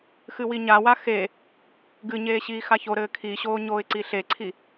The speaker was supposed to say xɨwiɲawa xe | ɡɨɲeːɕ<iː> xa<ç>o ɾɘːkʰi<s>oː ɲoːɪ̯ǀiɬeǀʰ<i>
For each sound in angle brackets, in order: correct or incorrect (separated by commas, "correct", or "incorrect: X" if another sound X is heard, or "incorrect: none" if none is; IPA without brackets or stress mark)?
correct, correct, incorrect: ɕ, correct